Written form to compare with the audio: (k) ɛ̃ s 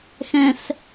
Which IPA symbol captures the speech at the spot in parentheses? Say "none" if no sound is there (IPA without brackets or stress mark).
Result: x